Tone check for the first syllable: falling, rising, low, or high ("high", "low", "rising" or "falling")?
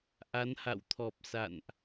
rising